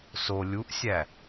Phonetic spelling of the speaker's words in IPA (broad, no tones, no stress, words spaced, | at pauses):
so lʲuʔsʲæ